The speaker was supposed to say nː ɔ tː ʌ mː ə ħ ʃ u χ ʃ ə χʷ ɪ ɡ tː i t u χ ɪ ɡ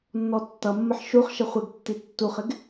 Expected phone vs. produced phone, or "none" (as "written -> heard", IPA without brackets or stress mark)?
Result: t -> tː